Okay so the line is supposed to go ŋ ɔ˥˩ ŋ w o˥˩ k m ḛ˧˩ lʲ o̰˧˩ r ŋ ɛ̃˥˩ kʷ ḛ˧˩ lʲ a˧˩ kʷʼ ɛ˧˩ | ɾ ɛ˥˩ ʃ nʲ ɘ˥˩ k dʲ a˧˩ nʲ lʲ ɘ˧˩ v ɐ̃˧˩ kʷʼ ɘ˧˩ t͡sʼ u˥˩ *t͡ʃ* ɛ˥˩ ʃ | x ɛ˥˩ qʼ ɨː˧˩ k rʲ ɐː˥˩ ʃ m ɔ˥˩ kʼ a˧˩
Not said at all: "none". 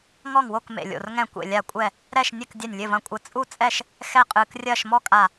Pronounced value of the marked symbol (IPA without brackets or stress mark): t͡sʼ